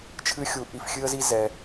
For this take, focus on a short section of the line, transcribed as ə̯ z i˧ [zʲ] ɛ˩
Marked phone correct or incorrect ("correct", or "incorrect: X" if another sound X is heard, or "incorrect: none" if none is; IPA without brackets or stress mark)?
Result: incorrect: z